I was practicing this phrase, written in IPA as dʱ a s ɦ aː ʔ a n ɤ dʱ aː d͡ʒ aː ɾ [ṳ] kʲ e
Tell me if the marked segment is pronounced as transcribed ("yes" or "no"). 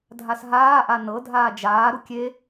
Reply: no